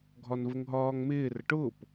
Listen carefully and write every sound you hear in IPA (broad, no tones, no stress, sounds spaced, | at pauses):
ɡʱ ɒ n v ə ŋ ɦ ɒː ŋ m ɪː r ə ʈ ʊː p